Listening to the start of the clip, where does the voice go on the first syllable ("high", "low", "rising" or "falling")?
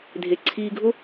low